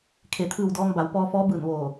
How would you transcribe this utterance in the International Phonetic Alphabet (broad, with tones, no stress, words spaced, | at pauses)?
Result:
kʰe˩t̪ʰɯː˧˩w dɔː˧ŋba˩˧w pɔː˧fɔː˧˥bɯː˧˩n ʋoː˧˩